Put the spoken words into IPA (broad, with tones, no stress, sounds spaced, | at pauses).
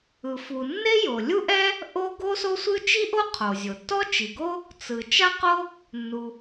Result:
ɯ˩ f u˩ nː e˥ j o˩ lʲ u˥ ʔ ɛ˥ | ʔ o˥ ɡ o˥ s o˥ sʷ ɯ˥ t͡ʃ i˥ ʔ o˥ qʰ o˩ zʲ o˩ tː ɔ˥ t͡ʃ i˩ ɡ o˥ | t͡s ɯ˩ t͡ʃ a˥ q o˥ | nː u˩